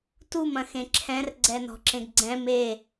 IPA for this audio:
t u m ɐ̃ x ẽ ǁʰ ɛ̃ r ɡ͡ǀ ɛ n ɔ̤ ǁ ẽ ɡ ɡ͡ǀ ɛ̃ m e

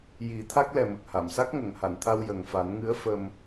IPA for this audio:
j i˨˩˦ t̪ʰ a˦˥ k̚ l ɛ˨˩ m ə˨˩ k̚ h a˨˩˨ m s a˦˥ k̚ ŋ ə˨˩˨ ŋ h a˨˩˨ n t̪ʰ a˧ w j ə˨˩ ŋ f a˨˩˦ n ŋ ɨ˧˥ ə̯ f ə˧ m

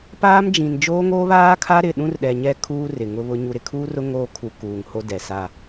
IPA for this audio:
p aː˦ m d͡ʒ ĩ˨ n d͡ʒ oː˦ ŋ oː˦ β aː˦ kʰ a˦ ɾ ɪ˦˨ ɗ ũ˦ r ɗ ɛ˨ ɲ ɛ˦ kʰ uː˦ r ɪ˨ ŋ ʊ˦ β ʊ˦ ɲ u˨ ɾ ɪ˨ kʰ uː˦ r ʊ˦ ŋ oː˦ kʰ u˨ k uː˨ ŋ h o˦ d ɛ˨ s a˦˨

